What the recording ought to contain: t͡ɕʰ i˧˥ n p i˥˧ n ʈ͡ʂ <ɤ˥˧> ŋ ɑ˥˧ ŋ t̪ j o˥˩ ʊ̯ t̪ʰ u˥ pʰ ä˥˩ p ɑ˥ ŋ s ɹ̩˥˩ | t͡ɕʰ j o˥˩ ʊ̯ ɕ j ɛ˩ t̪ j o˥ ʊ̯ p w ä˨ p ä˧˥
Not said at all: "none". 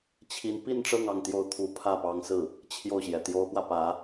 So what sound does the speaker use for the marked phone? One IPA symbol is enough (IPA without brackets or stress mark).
ɤ˥˧